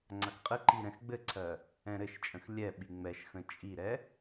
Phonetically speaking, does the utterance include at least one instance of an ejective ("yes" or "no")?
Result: yes